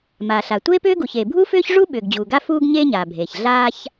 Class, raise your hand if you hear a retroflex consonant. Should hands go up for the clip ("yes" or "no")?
yes